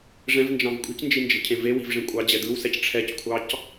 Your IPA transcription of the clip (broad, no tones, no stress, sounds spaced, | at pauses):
ʐ ɛ̃ v n d͡ʒ ɑ̃ v kʷʼ i̤ c n d͡ʒ i n d͡ʒ e̤ cʰ ẽ v e w i̤ v ʐ ẽ kʷʼ ɑ d͡ʑ ɛ d ɯ w s ɛ c ʈ͡ʂʰ ɛ c kʷʰ ɑ c